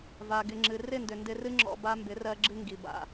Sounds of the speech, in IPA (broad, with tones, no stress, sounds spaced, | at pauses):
v a˨ ɡ ɪ˨ ŋ͡ǁ ɨ˨ r ɪ˦˨ n d ʏ˨ n d ɪ˧ r ɨ˦ ŋ͡ǁ ɔ̰˧ b a˧ m b ɪ˨˦ r ɜ˧ ɡ͡ǁ ɨ˧ ŋ ɡ i˨ b a̰˨